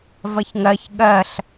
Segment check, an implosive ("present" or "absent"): present